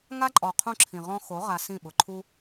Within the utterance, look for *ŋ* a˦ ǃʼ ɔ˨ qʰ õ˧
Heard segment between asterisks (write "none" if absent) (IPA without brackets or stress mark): ŋ